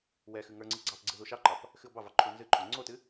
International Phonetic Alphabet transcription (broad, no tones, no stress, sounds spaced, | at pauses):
w ɛ x ɨ ŋ ə˞ ŋ͡ǀ ɨ ɡ͡ǀ ɑ p ɡ͡ǀ ɨ ð u ʃ ɑ ǃ ɑ p | x ɨ o̯ b ɑ v ɑ ǃʰ u n z ɨ ǃʰ o ŋ͡ǀ o t ɨ